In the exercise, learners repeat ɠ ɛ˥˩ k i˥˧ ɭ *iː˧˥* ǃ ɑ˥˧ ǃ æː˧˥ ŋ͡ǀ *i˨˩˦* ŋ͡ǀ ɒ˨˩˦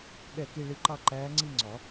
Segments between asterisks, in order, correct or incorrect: incorrect: i˧˥, incorrect: i˥˧

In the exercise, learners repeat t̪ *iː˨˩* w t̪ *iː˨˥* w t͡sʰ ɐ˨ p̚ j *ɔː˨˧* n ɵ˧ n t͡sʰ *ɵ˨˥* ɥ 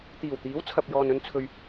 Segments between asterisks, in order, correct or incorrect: correct, correct, incorrect: ɔː˨, incorrect: ɵ˧

